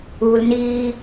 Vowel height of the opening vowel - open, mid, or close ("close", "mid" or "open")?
close